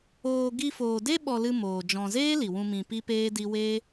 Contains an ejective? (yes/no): no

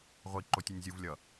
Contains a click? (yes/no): yes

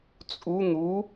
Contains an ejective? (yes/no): yes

